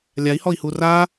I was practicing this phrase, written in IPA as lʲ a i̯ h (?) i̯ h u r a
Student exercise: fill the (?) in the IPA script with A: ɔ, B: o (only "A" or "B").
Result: A